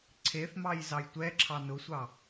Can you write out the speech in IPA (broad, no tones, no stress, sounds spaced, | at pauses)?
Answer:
ǀʰ e θ m ɑ j z ɑ j tʷ ɛ ǁʰ ɑ n ʊ sʷ ɑ